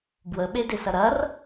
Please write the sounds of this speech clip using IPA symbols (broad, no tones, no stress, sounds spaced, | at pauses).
b w ə ɓ e d e s ɐ ɾ ɐ r